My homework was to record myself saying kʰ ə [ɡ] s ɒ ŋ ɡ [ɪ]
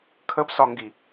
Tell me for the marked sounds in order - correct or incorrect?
incorrect: b, incorrect: i

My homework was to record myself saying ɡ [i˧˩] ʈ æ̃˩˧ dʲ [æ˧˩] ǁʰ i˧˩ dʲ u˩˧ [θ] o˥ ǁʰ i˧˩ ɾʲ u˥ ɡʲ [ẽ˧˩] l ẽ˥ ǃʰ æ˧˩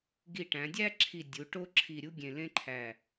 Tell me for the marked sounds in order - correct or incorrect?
correct, incorrect: æ˥, incorrect: ʈ, correct

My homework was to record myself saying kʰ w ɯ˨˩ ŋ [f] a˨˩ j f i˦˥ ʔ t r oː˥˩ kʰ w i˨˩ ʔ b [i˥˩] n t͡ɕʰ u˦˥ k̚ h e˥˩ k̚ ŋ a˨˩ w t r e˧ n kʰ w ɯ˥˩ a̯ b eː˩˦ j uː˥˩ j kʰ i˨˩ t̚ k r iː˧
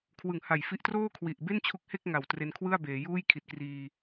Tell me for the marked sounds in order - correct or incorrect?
incorrect: h, incorrect: e˥˩

